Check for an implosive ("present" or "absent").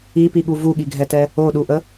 present